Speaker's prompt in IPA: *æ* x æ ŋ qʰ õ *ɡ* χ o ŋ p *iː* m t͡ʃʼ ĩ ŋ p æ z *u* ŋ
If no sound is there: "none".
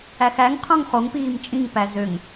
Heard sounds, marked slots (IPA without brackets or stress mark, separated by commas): æ, ŋ, iː, ø